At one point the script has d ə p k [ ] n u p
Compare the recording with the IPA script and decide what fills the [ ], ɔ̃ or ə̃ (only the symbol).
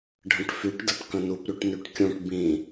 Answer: ə̃